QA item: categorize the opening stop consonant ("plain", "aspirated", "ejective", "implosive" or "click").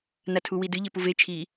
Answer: aspirated